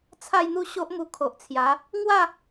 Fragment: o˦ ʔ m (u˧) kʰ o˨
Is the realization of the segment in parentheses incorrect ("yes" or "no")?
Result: no